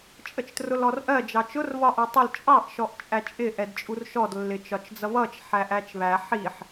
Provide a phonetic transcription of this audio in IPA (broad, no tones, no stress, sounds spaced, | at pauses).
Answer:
t͡ʃʼ ə t͡ʃ t r ʊ l ɔ r ʔ ɜ d͡ʒ ɑ t͡ʃ ʊ r β ɒ ʔ ɜ tˤ ə l t͡ʃʼ ɑ ʔ ʃ ɔ ʔ t͡ʃʼ æ t͡ʃʼ ɪ ʔ ɛ d t͡ʃʼ u r ʃ ɔ d lː ɪ t͡ʃ ɒ t͡ʃ d͡z ʌ β ʌ t͡ʃ ħ æ ʔ æ t͡ʃ β æ ħ i ħ